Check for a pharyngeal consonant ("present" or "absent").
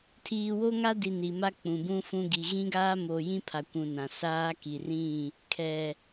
absent